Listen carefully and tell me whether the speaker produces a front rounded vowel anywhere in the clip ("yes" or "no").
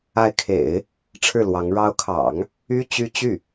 yes